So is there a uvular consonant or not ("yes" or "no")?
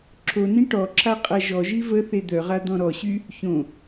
yes